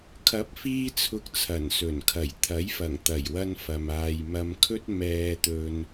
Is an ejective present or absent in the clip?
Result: absent